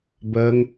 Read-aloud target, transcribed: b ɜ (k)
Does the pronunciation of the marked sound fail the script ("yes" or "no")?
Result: yes